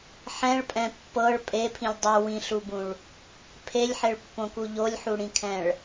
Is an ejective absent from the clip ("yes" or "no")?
no